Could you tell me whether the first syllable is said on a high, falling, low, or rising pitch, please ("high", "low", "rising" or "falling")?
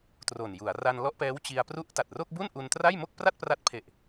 low